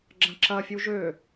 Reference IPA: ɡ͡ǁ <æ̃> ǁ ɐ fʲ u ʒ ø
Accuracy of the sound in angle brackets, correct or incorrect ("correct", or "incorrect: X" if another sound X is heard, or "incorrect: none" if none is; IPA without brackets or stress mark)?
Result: incorrect: ɐ̃